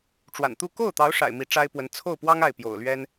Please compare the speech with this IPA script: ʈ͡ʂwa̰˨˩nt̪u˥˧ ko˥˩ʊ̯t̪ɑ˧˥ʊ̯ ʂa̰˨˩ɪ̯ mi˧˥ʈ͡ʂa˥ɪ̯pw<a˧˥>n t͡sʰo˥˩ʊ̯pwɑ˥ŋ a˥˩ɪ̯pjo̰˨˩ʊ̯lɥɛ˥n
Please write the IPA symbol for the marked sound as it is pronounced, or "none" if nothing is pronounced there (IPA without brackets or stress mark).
ə˧˥